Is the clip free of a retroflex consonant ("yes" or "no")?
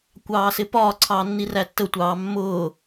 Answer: yes